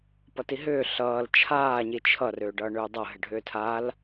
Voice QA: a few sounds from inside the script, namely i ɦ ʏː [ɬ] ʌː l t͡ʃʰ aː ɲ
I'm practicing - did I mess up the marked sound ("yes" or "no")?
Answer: no